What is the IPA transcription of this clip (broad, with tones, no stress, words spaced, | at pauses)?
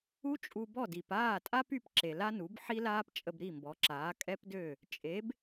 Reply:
u˥ t͡ʃʼu˧bɔ˥˩di˩p aː˥˩tʼa˥py˧p ǁe˩la˥nu˩˥b ħi˥laː˥p t͡ʃʼə˧bɾi˥˩mbɔ˩˥ǁaː˩˥ kʼɛ˥pdø˥˩ | t͡ʃʼe˩˥b